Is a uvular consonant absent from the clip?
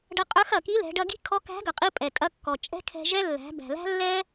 no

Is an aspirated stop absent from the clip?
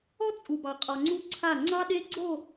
no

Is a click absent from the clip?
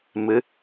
yes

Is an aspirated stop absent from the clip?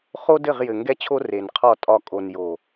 no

